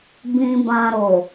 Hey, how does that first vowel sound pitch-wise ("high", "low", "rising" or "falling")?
low